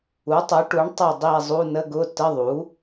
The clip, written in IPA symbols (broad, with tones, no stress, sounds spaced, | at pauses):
u˩˥ tˤ u˩˥ ʈ u˩˥ ɳ tˤ ə˦˨ dˤ i˦˨ e̯ zˤ u˧˥˧ n ə˧˥˧ ɡ ʊ˧˥˧ t ə˧˥˧ ðˤ u˩˥